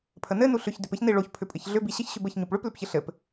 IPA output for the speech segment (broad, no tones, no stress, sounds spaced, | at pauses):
pʰ ə n ɘ n u ɬ ʏ ç d ʏ p ɘ ç n i ɭ o ç pʰ ʏ pʼ ɘ ç ɮ ʏ b i ɕ ə ç ɕ ʏ b ə ç ɲ u p ɭ ʏ p l ʏ p ç ə ɬ ɘ p